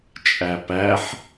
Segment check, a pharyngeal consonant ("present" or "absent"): present